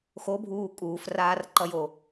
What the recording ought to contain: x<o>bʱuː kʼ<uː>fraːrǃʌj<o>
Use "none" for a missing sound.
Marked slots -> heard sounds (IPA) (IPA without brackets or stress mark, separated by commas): o, uː, o